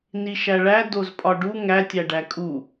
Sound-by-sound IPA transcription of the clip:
n i ʃ æ ɭ æ d o z pʼ ɒ ɖ u ŋ æ tʲ æ ɖ æ kʼ u

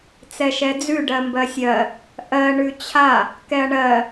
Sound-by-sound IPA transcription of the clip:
t͡s ɛ ʃ ɛ d͡z ʉ ɖ ɜ m b ɜ sʲ ɜ | ʔ ɜ ɳ ʉ t͡ɕʰ a | k ɛ ɐ̯ ɳ ɜ

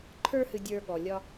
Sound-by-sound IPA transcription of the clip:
ǃʰ ə˞˦ h ɨ˧ dʲ ə˞˧ ɠ ɔ˨ lʲ ɒ˧

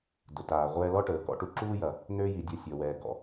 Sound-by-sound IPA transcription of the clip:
d ʊ˩ t aː˩ ʁʷ ɛː˧ l ɔ˥ ʈ əː˩ k ɔ̰˧ ʈ u˧ ǁ uː˥ j ɐ˩ | n ø˥ j i˩ dʲ ɐ˧ sʲ ɔ˩ w ɛː˩ ɡ ɔ̰˩

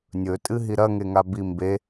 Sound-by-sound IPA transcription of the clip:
nʲ ɵ tʼ ɨ ɦ i ɾ ɐ ŋ e ŋ a b i m b e

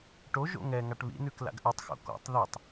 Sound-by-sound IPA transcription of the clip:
ʈ o ʒ o̰ ŋ ɛ ŋ a ʈ β ḭ n ʉ k l a̰ ɡ ʔ ʉ tˤ x o̰ k ɔ̰ tˤ ð i tˤ

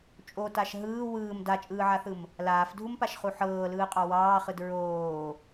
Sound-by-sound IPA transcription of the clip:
t͡ʃʼ o t a ʃ ɦ ɯː w ɯː m d a t͡ʃʼ ɯː ʕ a θ ɯ m | l aː f dʱ u m p a ʃ χ u ħ ɤː l ɯː qʼ ɑ w ɑː χ ɯ d ɹ oː

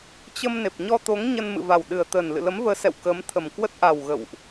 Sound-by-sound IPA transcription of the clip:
t͡ɕ ə˧ m n e˨˩ p̚ ɲ ɔ˧ t̪ o˨˦ ŋ ɲ ə˧ n m ɨ̰˧˨ v a˨˩ w ɗ ɨ˨˩ ə̯ t̪ ə˨˩ n l ɨ̰˧˨ l ə˨˦ m v əː˨˦ s ɛ̰˧˨ w k ə˨˦ m t̪ʰ ə˨˩ m k w ə˦˥ t̚ ʔ a˨˩ w ɣ ə̰˧˨ w ʔ

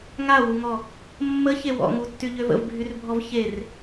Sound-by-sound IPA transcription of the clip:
ŋ a w u ŋ ɔ | mː ə ç e w ɔ̰ ŋ u tː y ʎ ø v ə̰ v bʱ y r bʱ ɔ v ç e r

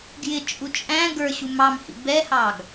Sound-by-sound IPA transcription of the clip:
ɡ j ɪ t͡ʃʼ u t͡ʃʼ æ̃ ɡ ə˞ ɕ u m ɑ m h ḭ b ɛ h ɑ ɡ

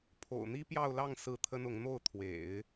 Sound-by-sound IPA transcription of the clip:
pʰ o̰˨˩ ʊ̯ n̪ i˥ p j ɑ˥˧ ʊ̯ l ɑ˥˧ ŋ s ɹ̩˥˩ t̪ʰ ə˥ n ʊ˧˥ ŋ n̪ o˥˩ ʊ̯ t̪ʰ w ḛ˨˩˦ ɪ̯

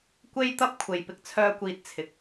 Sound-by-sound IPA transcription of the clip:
kʷ e˥ j t̪ ɐ˥ p̚ kʷʰ e˨ j p ɪ˧ k̚ t͡sʰ œː˧ kʷ iː˨ t̚ t͡sʰ ɪ˨˥ k̚

